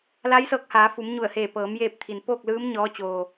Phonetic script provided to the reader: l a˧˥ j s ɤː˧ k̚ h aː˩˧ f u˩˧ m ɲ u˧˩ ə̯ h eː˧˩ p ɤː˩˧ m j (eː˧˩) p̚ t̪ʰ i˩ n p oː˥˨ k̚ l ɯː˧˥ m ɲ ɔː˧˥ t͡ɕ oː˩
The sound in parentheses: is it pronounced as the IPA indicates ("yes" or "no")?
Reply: no